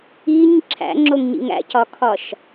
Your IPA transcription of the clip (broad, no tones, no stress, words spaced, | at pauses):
iɲ ǁʰæ̰ŋ͡ǁoŋɲḭŋ æ̰cɒkʰɒʃ